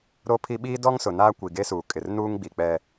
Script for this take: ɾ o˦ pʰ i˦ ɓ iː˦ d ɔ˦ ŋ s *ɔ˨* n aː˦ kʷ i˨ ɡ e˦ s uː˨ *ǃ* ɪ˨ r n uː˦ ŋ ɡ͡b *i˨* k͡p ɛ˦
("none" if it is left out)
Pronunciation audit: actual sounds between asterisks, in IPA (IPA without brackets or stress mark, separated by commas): ʊ˨, kʼ, i˨